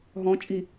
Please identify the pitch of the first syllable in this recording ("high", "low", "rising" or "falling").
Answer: rising